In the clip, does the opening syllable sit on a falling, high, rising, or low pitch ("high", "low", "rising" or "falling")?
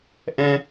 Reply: high